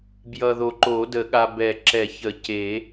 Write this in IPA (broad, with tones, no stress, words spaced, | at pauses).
bjʌ˨ðo˨ǃo˨˩˦ də˨˩˦ɠa˨ bɛ˨˩˦ǁɛ˨˩˦çə˨˩˦ ce˨˩˦